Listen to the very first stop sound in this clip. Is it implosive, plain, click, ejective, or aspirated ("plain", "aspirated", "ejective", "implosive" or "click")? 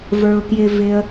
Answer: plain